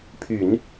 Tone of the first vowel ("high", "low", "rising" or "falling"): low